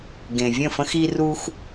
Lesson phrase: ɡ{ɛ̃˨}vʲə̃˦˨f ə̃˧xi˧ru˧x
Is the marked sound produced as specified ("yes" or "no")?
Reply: no